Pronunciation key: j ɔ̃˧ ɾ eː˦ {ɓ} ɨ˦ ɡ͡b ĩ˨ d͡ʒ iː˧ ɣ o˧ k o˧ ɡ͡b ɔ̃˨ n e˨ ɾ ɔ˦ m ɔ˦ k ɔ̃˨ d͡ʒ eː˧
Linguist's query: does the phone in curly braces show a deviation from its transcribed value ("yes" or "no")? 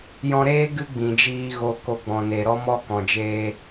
yes